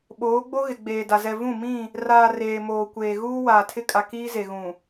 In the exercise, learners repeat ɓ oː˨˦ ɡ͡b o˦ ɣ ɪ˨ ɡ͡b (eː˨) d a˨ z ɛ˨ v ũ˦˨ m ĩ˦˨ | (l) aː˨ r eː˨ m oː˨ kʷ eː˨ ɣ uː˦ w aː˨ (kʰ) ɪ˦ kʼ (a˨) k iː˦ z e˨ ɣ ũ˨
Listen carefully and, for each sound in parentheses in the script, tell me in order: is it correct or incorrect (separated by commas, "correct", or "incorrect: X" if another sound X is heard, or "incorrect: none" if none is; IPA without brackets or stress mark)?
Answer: correct, incorrect: r, incorrect: tʰ, correct